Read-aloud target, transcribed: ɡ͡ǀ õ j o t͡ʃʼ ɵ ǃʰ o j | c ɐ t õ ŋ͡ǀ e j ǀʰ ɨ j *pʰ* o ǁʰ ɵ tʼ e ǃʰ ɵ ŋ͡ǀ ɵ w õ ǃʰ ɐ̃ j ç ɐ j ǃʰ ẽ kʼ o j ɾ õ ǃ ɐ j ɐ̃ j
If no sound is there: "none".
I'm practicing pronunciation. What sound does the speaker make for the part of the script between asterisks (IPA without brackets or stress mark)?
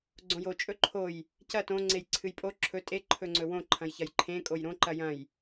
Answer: pʼ